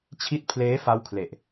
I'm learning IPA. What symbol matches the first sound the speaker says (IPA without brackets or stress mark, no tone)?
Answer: t͡ɕʰ